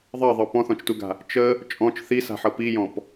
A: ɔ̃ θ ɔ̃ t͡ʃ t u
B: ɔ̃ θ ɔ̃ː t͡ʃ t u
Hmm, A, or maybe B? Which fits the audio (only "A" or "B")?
A